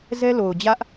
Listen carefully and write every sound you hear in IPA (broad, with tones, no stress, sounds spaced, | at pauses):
z ɛ˦ l o˨ ʊ̯ d͡ʑ ä˦ ʔ